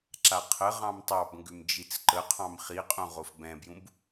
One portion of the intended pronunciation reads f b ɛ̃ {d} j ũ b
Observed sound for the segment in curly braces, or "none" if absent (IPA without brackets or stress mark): b